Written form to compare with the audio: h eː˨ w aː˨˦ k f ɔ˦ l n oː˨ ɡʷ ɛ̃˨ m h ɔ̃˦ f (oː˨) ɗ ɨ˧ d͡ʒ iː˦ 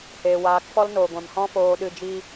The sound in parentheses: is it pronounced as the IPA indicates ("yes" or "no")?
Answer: no